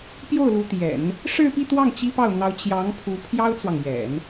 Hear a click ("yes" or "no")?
no